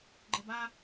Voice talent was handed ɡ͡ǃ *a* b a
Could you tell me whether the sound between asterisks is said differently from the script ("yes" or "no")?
yes